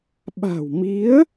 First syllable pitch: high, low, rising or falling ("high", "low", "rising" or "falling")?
low